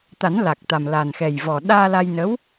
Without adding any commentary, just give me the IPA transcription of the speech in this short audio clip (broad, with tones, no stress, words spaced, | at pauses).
t̪a˨˩˦nla˨˩k̚t̪a˨˩m la˨˩n xɛ˨˩j vɔ˨˩ ɗaː˧la˧jnə˧˥w